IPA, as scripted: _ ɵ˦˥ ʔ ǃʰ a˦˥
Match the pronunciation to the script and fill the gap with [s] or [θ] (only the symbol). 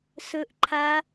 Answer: s